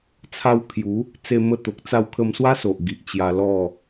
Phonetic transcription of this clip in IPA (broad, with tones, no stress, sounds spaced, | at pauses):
t͡sʰ a˧ w kʰ j u˨˦ | t͡s e˧ m ə˧ t̪ o˨ k̚ t͡s a˧ w kʰ ə˧ m s w a˦ s o˨ ʔ ɡ i˨ ʔ t͡ɕ j a˧ l ɔ˥˧